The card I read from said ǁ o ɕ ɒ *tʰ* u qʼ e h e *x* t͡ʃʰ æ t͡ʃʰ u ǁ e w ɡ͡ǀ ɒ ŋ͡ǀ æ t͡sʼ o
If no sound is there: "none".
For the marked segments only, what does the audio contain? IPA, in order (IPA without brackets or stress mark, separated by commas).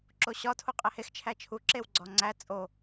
tʰ, x